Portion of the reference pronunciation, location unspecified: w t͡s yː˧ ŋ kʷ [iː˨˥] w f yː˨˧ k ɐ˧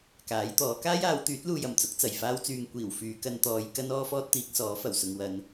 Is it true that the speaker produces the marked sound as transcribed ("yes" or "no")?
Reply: no